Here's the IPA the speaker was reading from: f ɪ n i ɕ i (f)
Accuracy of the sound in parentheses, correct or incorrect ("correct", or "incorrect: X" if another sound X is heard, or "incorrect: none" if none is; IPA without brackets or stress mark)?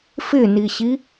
incorrect: none